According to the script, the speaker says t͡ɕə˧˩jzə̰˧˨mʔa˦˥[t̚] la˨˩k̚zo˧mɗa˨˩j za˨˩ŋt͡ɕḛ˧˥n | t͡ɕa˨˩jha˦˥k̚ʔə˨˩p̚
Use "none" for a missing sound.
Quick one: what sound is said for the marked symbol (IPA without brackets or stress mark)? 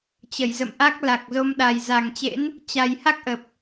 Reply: k̚